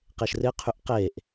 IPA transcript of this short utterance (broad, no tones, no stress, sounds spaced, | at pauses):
q e ʃ r ɪ qʰ y ʔ q e ʔ